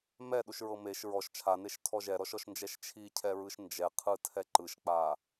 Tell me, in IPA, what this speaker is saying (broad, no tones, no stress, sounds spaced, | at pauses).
m ɛ ɗ u ʃ ɹ ɤ m e ʃ ɹ ɔ ʃ t͡ʃʰ a n e ʃ tʰ ɔ ʒ ɛ ɾ ɔ ʃ ɔ ʃ n d͡ʒ ɛ ʃ t͡ʃʰ i cʰ ɛ ɹ ɯ ʃ n d͡ʒ ɛ qʰ ɯ tʰ ɛ ǃ ɯ ʃ k͡p a